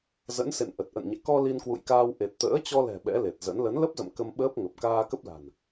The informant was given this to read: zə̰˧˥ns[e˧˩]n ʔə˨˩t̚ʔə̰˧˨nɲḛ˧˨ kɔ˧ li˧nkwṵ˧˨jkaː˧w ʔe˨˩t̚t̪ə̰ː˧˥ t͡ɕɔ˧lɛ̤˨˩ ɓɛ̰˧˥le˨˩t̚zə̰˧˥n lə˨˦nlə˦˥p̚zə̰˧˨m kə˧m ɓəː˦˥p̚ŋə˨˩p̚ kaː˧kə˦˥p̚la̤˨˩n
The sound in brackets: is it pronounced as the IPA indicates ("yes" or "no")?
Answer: no